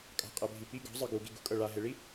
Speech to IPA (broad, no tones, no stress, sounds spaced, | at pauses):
kʼ a̤ qʼ ɛ bʱ i p i ɡ ɔ̤ zˤ ɯ ɡ u ɡ i ɡ ṳ kʼ ɤ ɭ a ɦ e ɭ i